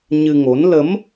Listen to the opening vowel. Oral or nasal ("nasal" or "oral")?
oral